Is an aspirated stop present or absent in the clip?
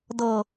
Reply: absent